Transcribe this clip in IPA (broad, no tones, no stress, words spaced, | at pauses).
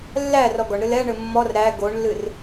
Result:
lːæ rɔɡɔɳɾɨ lɛɳɘ mːɔr ɾæ ɡoɳlːɨr